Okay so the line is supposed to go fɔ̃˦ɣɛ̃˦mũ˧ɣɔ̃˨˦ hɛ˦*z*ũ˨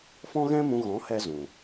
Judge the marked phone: correct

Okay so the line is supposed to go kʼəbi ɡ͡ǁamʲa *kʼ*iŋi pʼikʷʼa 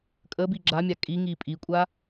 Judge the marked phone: correct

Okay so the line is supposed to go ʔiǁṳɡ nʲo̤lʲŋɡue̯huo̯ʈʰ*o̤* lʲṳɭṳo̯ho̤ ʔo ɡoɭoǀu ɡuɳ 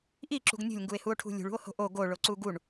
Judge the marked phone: incorrect: ṳ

